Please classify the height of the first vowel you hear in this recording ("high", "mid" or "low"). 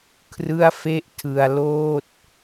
high